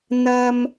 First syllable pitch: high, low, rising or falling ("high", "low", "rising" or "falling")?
high